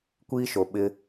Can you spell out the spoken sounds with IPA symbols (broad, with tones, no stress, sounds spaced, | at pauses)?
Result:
kʷ iː˦ ʃ o˨ ɓ ɪ˦